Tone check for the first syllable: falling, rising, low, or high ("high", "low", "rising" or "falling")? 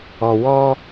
low